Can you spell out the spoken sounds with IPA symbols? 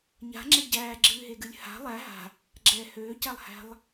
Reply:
ɲ a̤ ŋ͡ǁ ɛ ɟ æː ɡ͡ǁ ɨː ɦ e ɡ ɨ lʲ h a̤ lˠ æ ɦ a̤ | ɡ͡ǁ ɛ h øː c æ lˠ h æ̤ lˠ

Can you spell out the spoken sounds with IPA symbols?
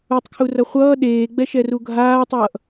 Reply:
u tˤ kʰ u r ʌ χʷ ʌː ɗ eː ɡ͡b ɛ ʃ ɛ r u ɡʱ aː tˤ ʌː ʔ

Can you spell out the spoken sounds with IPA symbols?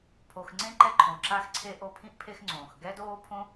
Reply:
pʰ o˨ x ŋ͡ǀ ẽ˥ ǃ ɛ˦ ǃʰ õ˨ ǁ a˥ x ǀʰ e˥ ʔ o˦ pʰ ĩ˥ ʔ pʰ e˦ x ŋ͡ǀ õː˩ x ɡ ɛ˥ d oː˥ pʰ õ˥

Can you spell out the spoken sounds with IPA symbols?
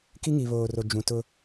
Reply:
k i˦ ŋ i˨ β oː˨ r o˨ d͡ʒ ũ˨ t ʊ˦

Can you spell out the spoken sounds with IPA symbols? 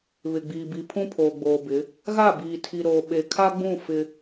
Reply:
β ɪ˨ ɡ͡b iː˨ b i˨ pʰ ũ˦ pʰ oː˨ ɡ͡b oː˨ b ɪ˨˦ | ɣ a˦˨ b iː˨ tʰ i˨ ɾ oː˨ ɓ e˨ kʰ a˦ ɡ͡b ũ˦˨ f ɪ˦

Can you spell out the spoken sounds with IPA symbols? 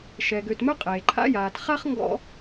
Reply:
ʃ ɛ˩ ɡ ø˨ t m œ˥ qʼ e˩ ǃʰ a̰˦ j aː˨ t χ a˥ χ ŋ ɡ ɔ̰˦

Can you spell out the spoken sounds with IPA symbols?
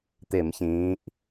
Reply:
t̪ ɪ˧˩˧ m ç ĩː˩˧ ʔ

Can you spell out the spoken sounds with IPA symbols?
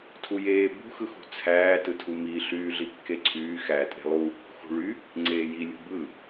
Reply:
tʰ u j eː b ṳ x ɯ x ṳ t͡sʰ æː t ɯ tʰ u m i ɬ yː ɮ i kː e ǀʰ yː x æ tʼ e̤ lˠ u | x ṳ ɭ y | ŋ͡ǀ eː j i lʲ ṳ b ɯ

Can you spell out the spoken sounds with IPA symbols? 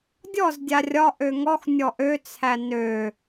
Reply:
dʲ ɔ z dʲ a rʲ ɒ ʔ ø ŋ ɔ x nʲ ɔ ʔ ø t͡sʰ æ n ø

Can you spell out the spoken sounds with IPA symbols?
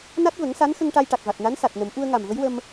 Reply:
n a˦˥ t̚ v ə˨˩˦ ŋ s a˧˥ n x ə˧ ŋ ʈ a˧ j ʈ a˨˩ k̚ v a˨˩ t̚ n a˧˥ n s a˨˩ t̚ n ə˨˩˦ m ʔ u˧ ə̯ ŋ a˨˩ m v ə˧˥ j w ə˧ m

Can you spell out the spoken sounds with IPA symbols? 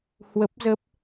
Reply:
h w ə˦˥ p̚ z ə˦˥ p̚

